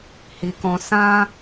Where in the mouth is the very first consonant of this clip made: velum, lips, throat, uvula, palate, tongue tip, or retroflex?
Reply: throat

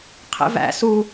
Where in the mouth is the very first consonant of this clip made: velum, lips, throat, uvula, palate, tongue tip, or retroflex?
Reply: uvula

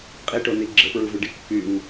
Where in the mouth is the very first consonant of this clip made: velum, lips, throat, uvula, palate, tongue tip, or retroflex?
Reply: uvula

